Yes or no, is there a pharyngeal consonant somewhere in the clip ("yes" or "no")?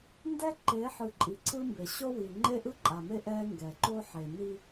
yes